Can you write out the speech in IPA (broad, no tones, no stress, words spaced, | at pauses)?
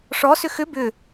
ʂɔsʏ xʏ bʏ